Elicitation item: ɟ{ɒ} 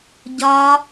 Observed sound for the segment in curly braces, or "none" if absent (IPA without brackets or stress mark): ɒ